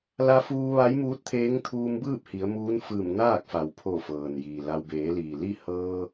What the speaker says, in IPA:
l a˧ f uː˧ ʋ a˧˥ j m uː˧˥ t̚ t̪ʰ eː˧˥ ŋ t̪ʰ uː˧ m b ɯː˥˨ p̚ h i˩˧ ə̯ m uː˧˥ n f ɯː˧˩ m n aː˥˨ k̚ f a˩ w pʰ o˧˩ f ɤː˩ n j iː˩ l a˧ w b eː˩˧ l iː˩ l i˥˨ h ɤː˧

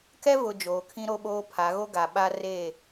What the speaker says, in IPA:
k ɛ˦ v ʊ˨ d͡ʒ oː˨˦ kʰ ĩ˦ ɾ o˦ ɓ oː˦ pʰ a˨˦ ɣ o˦ ɡ a˨ ɓ a˦ r e˦˨

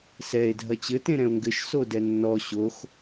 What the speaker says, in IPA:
s ɛ e̯ dʱ ɐ t͡ɕ ɘ t ẽ ɾ ɛ̃ o̯ ŋ ɡ ɘ ʃ s o d ɛ nː ɔ ɕ o x

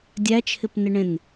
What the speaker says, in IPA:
dʲ æ t͡ʃʰ ɪ p n ɪ ɳ ẽ n

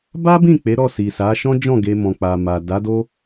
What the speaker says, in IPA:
b a˦ b ĩ˦˨ k͡p e˨˦ ɾ ɔ˦˨ s i˨ s a˨˦ ʃ ɔ̃˦ d͡ʒ ɔ̃˦˨ ɡ e˧ m ɔ̃˨ k͡p a˨ m a˨ d a˨˦ d o˦

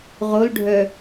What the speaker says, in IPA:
ʁ o l ɖʱ œ

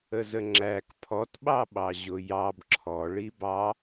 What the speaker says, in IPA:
ə z ə ŋ͡ǁ æ k pʰ ɔ t ɓ ɑ ɓ ɑ ʑ ʊ j ɑ b ǁʰ ɔ ɭ i b ɑ

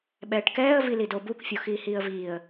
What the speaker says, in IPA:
ɓ ɛː ʈ k ɛː ə̯ v i l i d o b u k fʲ o x iː h iː ə̯ v iː ə̯

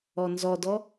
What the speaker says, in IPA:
ɔ n z ɔ d ɔ

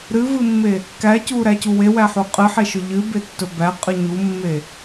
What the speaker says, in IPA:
ɾ ɨ v ɨ mː e | k æ c u ɾ æ c u w e w æ ħ u qʼ ɨ ħ e ʃ ɵ ʎ ɨ b e tː ɵ b æ qʼ ɨ ɲ u mː e

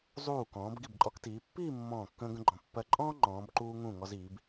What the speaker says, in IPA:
zˤ uː˧˩ k ɔ̃ː˩˧ b ɡ i˧˩ b ǃʼ ɔ˧ k t iː˩˧ pː iː˥˧ mː ɔ̃ː˧˩ kː ə̃ː˧ ɡ ə̃˧ ɡ͡ǃ ɔ̃˩˧ pː ɜ˧ ǃʼ ɔ̃ː˥ ŋ͡ǃ ɔ̃ː˩˧ b ǃ uː˧ ŋ ũ˧˩ ŋ ɔ˧ z iː˩˧ b

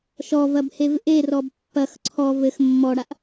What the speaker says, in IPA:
ʃ ɔ v ɐ b h e v ʔ e r ɔ b pː ɐ x ǀʰ ɔ v ɘ x mː ɔ ɽ a ʔ

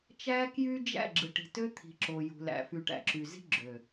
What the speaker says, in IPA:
t͡ʃ æ˦ k j y˦ d͡ʒ æ̰˦˨ ɡ͡ǁ ɯ˨ ʈ i̤˨ t ø˦ t̪ʰ i̤˨ ǁ o˨ j ṳ˨ l æ̰˨ f y˨ ʈ æ̰˨ ǁ y˨ z i̤˦ ɡ͡ǁ ø˨

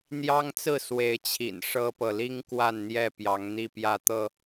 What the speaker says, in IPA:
n̪ j ɑ˦ ŋ t͡s ɹ̩˥˨ s w e˨˦ ɪ̯ t͡ɕʰ ḭ˨˩ n ʂ ɤ˦ p ɤ˨ l i˦ ŋ k w a˥˨ n n̪ j ɛ˥˨ p j ɑ˨˦ ŋ n̪ i˥˨ p j ä˥˨ t̪ ɤ˥˨

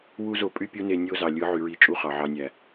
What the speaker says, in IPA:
w u˦ z o˧ pʼ y˦ pʲ u˦ n e˧ nʲ o˦ z ɑ˨ lʲ ɯ˨˦ ʕ y˨ ɹ i˧ t͡ʃʼ u˦ χ ɑ˨ ʕ ɑ˧ nʲ æ˨

